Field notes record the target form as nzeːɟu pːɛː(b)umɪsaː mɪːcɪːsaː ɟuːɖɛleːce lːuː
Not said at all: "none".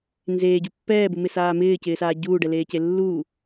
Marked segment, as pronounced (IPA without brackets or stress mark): b